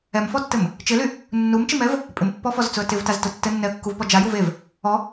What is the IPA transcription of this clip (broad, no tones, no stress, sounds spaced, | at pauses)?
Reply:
ɛ m f ɔ tː ɘ m | t͡ʃ ɪ l y | nː u m t͡ʃ ɪ m ɛ v | pʼ ɪ m pː ɔ f ɔ z t͡s ʊ ə̯ t ɪ v t a z t ʊ tː ɘ nː ɛ ə̯ kː u v p ɔ d͡ʒ a j u v e v | ɔ